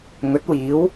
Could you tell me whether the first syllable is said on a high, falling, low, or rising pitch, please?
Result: rising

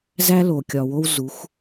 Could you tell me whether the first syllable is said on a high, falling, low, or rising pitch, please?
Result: high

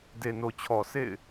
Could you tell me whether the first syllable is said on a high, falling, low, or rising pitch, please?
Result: low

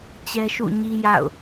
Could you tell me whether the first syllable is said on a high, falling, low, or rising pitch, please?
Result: high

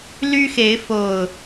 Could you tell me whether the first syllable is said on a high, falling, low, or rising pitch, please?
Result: high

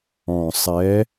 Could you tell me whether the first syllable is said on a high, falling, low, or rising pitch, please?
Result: low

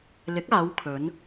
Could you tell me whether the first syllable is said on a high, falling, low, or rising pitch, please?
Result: rising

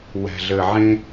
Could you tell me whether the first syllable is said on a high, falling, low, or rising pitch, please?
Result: low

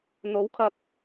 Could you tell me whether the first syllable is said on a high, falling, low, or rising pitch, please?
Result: rising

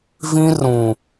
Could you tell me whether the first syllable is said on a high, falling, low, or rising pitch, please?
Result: high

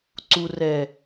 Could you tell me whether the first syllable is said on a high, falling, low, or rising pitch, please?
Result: low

